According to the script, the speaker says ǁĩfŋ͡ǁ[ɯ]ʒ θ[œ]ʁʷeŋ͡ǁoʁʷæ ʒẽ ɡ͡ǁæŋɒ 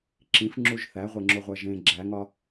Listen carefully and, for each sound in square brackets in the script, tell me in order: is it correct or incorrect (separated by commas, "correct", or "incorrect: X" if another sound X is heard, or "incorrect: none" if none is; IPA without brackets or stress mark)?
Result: incorrect: u, incorrect: æ